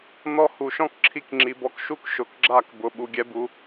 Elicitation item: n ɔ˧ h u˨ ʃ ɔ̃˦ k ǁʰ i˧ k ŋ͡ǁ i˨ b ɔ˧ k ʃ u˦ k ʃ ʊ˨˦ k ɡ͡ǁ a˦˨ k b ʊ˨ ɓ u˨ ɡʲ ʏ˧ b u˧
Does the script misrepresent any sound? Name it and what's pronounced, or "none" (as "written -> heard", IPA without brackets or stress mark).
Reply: ʏ˧ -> ɛ˧